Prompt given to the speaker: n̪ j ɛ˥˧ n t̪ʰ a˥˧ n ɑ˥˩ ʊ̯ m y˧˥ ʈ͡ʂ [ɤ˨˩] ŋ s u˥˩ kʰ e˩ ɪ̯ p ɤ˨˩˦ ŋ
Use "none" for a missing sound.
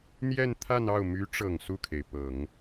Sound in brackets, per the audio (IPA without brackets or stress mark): ɤ˨˩